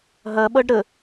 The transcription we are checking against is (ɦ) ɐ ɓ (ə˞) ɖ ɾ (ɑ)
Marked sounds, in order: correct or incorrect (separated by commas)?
correct, incorrect, incorrect